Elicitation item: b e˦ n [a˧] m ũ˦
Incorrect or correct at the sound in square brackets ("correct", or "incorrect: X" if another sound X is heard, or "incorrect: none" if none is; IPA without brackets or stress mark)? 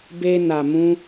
correct